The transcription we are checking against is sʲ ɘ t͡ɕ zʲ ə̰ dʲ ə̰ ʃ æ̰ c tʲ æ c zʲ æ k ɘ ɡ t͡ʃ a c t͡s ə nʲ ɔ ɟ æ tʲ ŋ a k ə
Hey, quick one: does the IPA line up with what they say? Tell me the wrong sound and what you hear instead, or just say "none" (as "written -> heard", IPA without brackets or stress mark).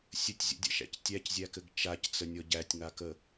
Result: t͡ɕ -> tʲ